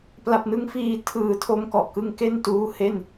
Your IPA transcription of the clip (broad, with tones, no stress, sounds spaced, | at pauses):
p l a˨˩ p̚ n ɯ˦˥ ŋ f iː˧ tʰ ɯː˨˩ tʰ o˧ m k ɔ˨˩ ʔ k ɯ˦˥ ŋ k e˥˩ n t uː˦˥ h e˥˩ n